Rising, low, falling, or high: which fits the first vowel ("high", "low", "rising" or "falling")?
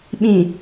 low